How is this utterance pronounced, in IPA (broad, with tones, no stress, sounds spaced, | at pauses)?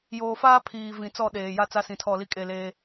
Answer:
j oː˨ f aː˦ pʰ iː˨ v ĩ˨ t͡s ɔ˦˨ ɗ eː˨ j a˦ t͡s a˦ s ĩ˨ tʰ ɔ˦˨ l i˦ kʼ e˦˨ l eː˦